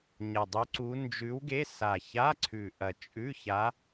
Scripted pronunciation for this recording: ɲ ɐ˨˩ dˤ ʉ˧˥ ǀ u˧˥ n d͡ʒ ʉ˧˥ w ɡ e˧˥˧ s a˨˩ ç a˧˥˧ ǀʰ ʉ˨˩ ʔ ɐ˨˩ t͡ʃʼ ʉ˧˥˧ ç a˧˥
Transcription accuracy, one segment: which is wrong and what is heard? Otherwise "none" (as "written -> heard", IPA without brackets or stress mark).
none